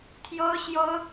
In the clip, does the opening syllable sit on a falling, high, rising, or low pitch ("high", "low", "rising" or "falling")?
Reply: high